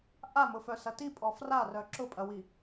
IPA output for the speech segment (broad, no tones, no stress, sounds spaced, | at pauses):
ʔ a m ʊ f œ s ɐ t i pʼ ɔ f r a r œ ǁ ʊ pʼ ɐ w i